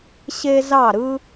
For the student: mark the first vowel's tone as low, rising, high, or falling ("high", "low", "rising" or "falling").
high